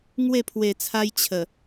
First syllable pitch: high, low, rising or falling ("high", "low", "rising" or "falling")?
falling